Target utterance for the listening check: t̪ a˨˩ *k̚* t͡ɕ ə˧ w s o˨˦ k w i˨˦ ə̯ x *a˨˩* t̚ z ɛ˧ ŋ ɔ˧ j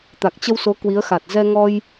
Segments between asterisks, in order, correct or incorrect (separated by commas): correct, correct